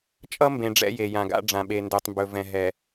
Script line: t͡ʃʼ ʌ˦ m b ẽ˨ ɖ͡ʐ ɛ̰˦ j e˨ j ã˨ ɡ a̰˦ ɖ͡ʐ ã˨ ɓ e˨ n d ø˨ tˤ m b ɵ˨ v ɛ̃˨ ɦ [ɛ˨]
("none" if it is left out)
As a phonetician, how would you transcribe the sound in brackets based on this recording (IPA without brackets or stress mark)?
ɛ˨